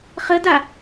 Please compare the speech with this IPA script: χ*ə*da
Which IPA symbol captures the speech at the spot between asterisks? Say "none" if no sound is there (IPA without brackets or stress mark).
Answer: ə